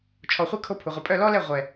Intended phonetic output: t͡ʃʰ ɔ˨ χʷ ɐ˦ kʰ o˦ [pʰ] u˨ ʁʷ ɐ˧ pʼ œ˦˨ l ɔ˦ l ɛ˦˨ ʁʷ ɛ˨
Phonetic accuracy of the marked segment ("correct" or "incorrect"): correct